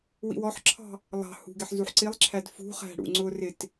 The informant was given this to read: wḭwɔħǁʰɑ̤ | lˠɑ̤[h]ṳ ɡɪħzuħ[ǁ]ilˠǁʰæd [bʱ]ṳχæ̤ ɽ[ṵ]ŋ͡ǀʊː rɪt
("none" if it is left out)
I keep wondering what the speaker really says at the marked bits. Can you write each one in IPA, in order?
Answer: h, ǀ, f, ṵ

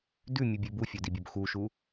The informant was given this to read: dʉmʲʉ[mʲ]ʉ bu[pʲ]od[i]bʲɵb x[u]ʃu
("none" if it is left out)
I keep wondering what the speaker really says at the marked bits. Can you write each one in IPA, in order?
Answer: bʲ, fʲ, i, u

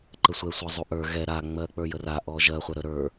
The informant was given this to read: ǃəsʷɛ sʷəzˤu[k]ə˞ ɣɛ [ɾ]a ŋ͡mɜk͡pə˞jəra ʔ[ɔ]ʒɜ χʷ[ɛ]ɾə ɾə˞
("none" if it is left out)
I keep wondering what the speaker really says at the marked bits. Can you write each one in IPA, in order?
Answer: ʔ, ɾ, ɔ, ɛ

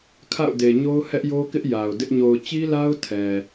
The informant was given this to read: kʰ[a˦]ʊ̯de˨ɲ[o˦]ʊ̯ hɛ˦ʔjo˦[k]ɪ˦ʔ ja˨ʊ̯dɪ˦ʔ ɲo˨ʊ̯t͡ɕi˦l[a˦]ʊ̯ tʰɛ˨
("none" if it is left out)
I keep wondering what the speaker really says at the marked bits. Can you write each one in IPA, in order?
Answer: a̰˦˨, o˦, k, a˦

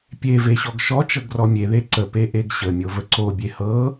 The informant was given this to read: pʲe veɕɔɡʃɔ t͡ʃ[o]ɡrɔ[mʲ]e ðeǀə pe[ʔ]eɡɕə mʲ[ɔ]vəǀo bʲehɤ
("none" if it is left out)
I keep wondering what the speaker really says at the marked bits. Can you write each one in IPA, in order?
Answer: ɤ, mʲ, ʔ, o

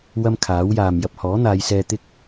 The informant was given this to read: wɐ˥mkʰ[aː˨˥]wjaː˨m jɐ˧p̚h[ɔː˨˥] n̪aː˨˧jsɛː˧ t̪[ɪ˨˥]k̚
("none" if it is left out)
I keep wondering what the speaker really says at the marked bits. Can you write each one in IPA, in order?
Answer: aː˨˥, ɔː˨˥, ɪ˥

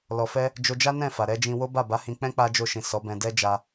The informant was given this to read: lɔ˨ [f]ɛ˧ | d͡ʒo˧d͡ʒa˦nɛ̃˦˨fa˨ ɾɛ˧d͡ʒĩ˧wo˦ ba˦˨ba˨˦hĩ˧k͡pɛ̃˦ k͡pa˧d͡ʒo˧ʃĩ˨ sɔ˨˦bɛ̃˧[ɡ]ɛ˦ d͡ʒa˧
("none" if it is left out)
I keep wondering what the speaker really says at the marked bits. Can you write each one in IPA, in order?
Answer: f, d

